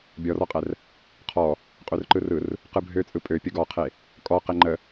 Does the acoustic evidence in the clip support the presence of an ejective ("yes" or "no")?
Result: yes